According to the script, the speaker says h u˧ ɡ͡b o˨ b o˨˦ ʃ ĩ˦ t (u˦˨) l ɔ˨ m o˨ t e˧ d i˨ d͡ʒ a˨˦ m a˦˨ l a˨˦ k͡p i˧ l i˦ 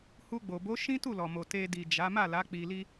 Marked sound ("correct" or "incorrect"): correct